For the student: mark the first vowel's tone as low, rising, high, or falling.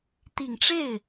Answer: low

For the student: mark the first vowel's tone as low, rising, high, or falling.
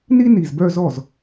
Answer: high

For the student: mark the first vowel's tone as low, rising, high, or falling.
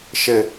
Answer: high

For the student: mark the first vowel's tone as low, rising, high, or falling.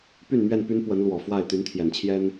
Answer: falling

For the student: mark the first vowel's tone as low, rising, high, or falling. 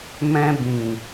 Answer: high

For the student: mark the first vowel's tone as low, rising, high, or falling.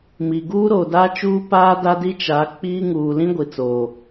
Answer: low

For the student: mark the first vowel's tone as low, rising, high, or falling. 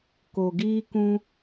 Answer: low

